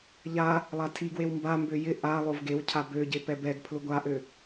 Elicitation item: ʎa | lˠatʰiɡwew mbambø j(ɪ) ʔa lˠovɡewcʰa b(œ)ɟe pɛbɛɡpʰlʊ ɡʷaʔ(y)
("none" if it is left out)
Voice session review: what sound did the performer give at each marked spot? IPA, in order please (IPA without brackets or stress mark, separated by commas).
ɪ, ø, ø